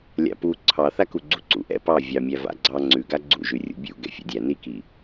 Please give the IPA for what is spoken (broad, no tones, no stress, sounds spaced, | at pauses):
lʲ a̰ p u ǀʰ ɑ θ a k u ɡ͡ǀ u ǀ ṵ ʔ ɛ̰ p ɑ vʲ ɑ mʲ æ v a̰ ɡ͡ǀ ɑ ŋ͡ǀ ʉ ɡ a ɡ͡ǀ ṵ ʒ ʉ rʲ ṵ bʲ ṵ ɡ ɛ̰ fʲ ɛ̰ dʲ æ n i k i